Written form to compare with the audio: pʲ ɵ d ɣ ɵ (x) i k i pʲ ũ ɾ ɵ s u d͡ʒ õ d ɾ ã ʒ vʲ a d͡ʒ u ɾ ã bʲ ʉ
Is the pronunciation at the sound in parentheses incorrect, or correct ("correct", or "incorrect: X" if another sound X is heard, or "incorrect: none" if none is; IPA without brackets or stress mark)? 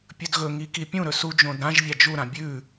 incorrect: ŋ